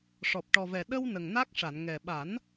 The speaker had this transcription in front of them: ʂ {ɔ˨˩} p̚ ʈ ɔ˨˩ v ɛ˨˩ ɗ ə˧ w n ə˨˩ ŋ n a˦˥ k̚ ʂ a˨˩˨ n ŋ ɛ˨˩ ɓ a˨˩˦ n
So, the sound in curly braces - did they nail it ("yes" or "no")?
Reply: yes